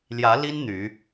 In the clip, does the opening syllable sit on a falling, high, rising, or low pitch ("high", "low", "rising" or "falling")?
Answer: rising